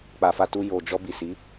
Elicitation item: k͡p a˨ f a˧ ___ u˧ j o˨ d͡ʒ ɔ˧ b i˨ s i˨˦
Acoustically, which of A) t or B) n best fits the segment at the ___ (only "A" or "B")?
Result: A